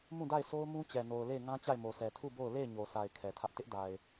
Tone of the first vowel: falling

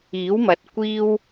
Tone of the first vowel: rising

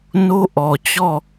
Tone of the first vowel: high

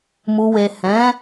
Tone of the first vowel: low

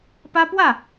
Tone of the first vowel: high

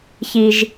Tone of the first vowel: high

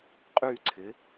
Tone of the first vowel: falling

